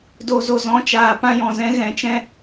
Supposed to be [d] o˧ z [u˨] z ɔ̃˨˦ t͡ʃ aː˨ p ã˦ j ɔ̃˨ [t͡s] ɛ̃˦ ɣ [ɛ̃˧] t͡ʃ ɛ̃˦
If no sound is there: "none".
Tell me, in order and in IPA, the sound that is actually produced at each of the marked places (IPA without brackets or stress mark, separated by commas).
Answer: d, o˨, z, ɛ̃˧